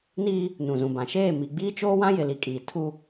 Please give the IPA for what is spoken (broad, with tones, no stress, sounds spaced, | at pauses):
n iː˦ | n ũ˨ z ũ˨ b ã˨ ʃ eː˦˨ m i˨ ɡ͡b iː˦ t͡ʃ oː˦ w ã˦ j ɪ˨ l i˨ kʼ iː˨ tʰ u˦